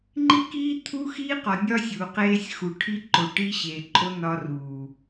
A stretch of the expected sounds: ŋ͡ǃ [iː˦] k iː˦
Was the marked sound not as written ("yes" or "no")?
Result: yes